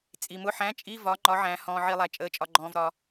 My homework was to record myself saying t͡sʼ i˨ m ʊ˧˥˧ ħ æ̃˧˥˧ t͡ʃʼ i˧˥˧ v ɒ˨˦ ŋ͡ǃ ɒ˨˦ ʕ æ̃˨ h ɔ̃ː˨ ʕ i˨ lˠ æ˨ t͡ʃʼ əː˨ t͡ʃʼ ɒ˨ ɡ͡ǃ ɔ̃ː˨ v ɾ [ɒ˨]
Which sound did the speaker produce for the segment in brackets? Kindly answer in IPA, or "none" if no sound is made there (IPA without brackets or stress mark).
ɒ˨